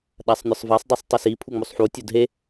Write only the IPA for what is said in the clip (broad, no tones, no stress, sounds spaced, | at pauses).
ɗ a sˤ nʲ o sˤ v a sˤ dˤ e sˤ tˤ o s i pʰ u ŋ͡m o sˤ ħ u tʲ o d ɦ e